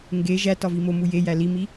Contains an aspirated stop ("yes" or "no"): no